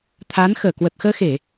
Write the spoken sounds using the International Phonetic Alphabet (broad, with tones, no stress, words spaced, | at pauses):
t̪ʰa˨˦n xəː˧˩kwə˨˩t̚xəː˧xe˧˩˨